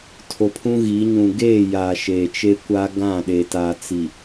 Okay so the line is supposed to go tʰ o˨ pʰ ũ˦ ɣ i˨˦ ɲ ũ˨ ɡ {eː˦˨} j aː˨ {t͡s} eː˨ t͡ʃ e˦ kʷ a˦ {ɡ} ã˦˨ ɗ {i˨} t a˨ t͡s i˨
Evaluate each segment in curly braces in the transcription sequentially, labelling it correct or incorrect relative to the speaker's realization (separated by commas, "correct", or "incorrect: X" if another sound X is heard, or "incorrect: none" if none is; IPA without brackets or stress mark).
correct, incorrect: ʃ, correct, incorrect: e˨